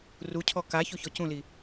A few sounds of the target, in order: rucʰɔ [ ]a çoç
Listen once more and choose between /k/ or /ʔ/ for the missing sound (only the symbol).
k